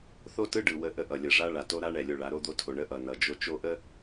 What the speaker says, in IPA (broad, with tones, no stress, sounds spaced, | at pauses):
θ o˦ t ɯ˦ ɖ ɯ˨ w ə˦ ʔ ə˦ ʔ ʌ˨ lʲ ə˨ ʐ a˦ ɭ a˨ t o˦ ɾ a˦ ɳ ɛ˨ lʲ o˨ ɭ a˨˦ ɾ o˦ d̪ o˦ tʰ o˨ ɳ ə˦ ʔ ʌ˨ n ʌ˨ d͡ʒ o˦ t͡ʃ o˦ ʔ ə˦